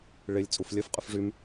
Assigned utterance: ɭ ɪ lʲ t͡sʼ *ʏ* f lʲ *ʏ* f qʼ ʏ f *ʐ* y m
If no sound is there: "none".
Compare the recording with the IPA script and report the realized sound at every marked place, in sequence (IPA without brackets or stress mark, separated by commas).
u, ə, ʐ